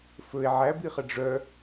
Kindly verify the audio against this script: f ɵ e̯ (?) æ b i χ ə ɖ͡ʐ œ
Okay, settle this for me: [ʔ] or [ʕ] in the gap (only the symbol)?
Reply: ʕ